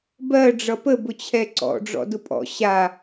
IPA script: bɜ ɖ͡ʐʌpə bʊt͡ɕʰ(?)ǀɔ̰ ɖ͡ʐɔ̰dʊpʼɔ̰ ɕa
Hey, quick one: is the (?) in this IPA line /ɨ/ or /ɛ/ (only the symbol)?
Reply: ɛ